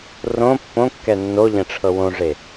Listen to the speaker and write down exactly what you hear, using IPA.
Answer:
r õ pː õ kː ɛ nː o ʎ ɛ̃ ʈ͡ʂʰ ɤ w õ ʐ e

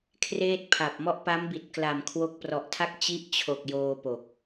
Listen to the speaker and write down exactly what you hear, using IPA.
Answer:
kʰ r eː˥˩ t̚ pʰ a˨˩ p̚ m ɔ˥˩ ʔ p a˦˥ m b i˨˩ t̚ k l a˨˩ m kʰ w o˦˥ k̚ p r ɔ˨˩ ʔ tʰ a˥˩ k̚ t͡ɕ i˦˥ ʔ t͡ɕʰ o˨˩ k̚ j oː˧ p o˨˩ k̚

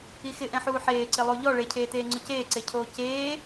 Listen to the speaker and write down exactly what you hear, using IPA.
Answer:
i x ɪ ʔ ɛ̃ ħ uː ħ eː ǀ ɪ lˠ o ʎ ɔ ɭ e cʰ eː t eː ŋ͡ǀ ʊ c eː ǀ e cʰ oː c eː

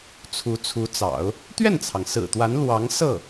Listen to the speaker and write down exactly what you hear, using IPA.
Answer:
t͡sʰ u˧˥ t͡sʰ u˧˥ t͡s ɑ̰˨˩˦ ʊ̯ | t̪ ɥ ɛ˥˩ n t͡sʰ ɑ˩ ŋ s ɹ̩˨˩ t̪ w a˧˥ n l w ɑ˧˥ ŋ s ɤ˥˩

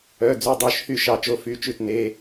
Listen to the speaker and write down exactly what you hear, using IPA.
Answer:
œ˩˧˩ d͡z y˩˧˩ dˤ œ˩˧˩ ʃ h y˥˨ ʃ ɑ˧˩ t͡ʃ o˧˩ f y˩˧˩ t͡ʃ ʉ˧˩ t n e˩˧˩

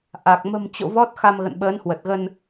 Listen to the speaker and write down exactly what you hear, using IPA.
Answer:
ʔ a˨˩ k̚ m ə̤˨˩ m t͡ɕ o̰˧˨ v ɔ˦˥ t̚ x a˧ m ɣ ə̰˧˨ n ɓ əː˨˦ n h w ə˨˩ t̚ ɣ ə˧ n

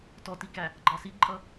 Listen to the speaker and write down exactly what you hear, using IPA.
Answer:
t ɔ t i k æ | ɡ͡ǃ ɑ s i ǃʼ ʌ

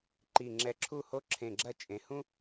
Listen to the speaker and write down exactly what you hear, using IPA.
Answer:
ǃ i˧˩ ŋ͡ǁ ɛ˧ ǁʰ u˥˧ h o˥ ǁʰ ẽ˧˩ ɡ͡ǁ ɐ˥˧ t͡ʃʼ ẽ˩˧ h ũ˥

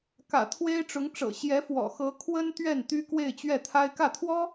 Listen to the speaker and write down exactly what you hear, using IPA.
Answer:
k ä̰˨˩ t̪ʰ w e˥ ɪ̯ ʈ͡ʂ ʊ˧˥ ŋ ʈ͡ʂ ɤ̰˨˩ ɕ j ɛ˧˥ f w ɔ̰˨˩ x ɤ˧˥ kʰ w ə˥ n t̪ ɥ ɛ˥˩ n t̪ y˥ k w e˥˧ ɪ̯ t͡ɕ ɥ ɛ˥˩ t̪ʰ a˥ ɪ̯ k ä˥˩ t̪ʰ w ɔ˥

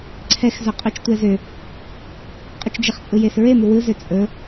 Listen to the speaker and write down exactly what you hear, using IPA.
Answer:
ǀʰ ɛ x z ɵ qʼ ɵ t͡ʃ tʷ ɛ z ʏ | qʼ ʏ t͡ʃ d͡ʒ ɛ χ t͡sʼ ɯ j e s ɹ e m u w ɯ z ʏ t͡sʼ ɵ

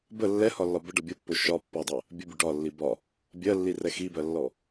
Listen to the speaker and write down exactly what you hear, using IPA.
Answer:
b ə lː ɛ h ɒ lː ɒ b ə ɖ ʌ bʲ o pː o ʃ ɒ pː ɔ dˤ ɜ | bʲ ə bʲ ʊ ɖ ɒ lː i b ɒ | bʲ ɜ lː i r ɛ x i b ɜ lː ɔ

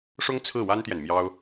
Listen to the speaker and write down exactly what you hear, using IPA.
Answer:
ʂ ʊ˥ ŋ t͡sʰ ɹ̩˥˩ w a˥ n t̪ j ɛ˨ n m j ɑ˥ ʊ̯

